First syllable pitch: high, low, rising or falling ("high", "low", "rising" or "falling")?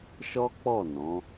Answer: high